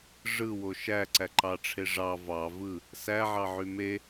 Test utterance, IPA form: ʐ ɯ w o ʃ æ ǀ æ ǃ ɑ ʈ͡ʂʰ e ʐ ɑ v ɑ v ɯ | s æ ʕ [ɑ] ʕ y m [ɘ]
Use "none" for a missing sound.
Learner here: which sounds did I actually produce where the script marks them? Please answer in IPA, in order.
ɑ, e

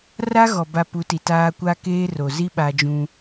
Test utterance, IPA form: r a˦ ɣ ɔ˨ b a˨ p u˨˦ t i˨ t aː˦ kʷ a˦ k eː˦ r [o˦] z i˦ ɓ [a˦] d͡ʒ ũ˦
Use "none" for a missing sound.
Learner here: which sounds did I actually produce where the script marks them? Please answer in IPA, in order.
o˨, a˦

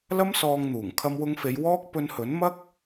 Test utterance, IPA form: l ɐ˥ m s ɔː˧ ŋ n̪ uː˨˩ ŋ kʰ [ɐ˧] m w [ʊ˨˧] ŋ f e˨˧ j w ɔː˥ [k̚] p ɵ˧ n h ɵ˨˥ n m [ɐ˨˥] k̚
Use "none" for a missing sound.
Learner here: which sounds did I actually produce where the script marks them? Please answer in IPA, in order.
ɐ˧, ʊ˧, k̚, ɐ˥

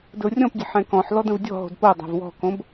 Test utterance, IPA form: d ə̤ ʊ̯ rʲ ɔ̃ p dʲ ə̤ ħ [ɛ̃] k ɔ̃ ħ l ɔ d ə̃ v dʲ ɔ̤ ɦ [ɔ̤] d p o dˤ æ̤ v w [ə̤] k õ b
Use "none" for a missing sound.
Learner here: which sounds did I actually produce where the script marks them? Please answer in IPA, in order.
ɛ̃, o̤, ɔ̤

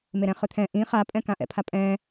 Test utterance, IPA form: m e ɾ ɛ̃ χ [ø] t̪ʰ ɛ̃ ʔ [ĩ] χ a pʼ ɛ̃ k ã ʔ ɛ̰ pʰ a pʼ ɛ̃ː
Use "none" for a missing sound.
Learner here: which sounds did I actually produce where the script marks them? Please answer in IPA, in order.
ø, ĩ

